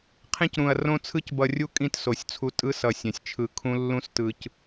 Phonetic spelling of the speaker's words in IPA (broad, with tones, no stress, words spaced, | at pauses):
qʰẽ˦cɾũ˨ɐ̯ rõ˦t͡sʰɯ˦c bʌ˨rʲu˦ kʼĩ˦tso˨sʲt͡sʰu˦ tʼɯ˦sʌ˨ sʲɛ̃˨sʲt͡ʃʰɯ˦˨ kʰũ˦lːũ˦s tɯ˨c